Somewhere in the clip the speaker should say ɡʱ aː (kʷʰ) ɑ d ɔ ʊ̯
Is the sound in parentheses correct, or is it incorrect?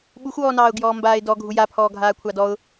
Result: correct